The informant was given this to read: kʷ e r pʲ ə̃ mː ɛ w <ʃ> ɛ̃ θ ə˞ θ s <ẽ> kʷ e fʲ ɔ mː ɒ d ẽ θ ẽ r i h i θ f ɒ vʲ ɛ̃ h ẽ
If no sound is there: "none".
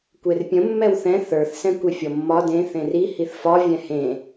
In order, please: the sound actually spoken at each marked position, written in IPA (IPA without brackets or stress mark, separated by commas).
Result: θ, ɛ̃